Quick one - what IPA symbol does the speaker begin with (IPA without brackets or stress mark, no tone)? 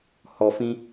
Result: h